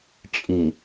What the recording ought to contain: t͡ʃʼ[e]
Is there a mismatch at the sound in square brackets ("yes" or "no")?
yes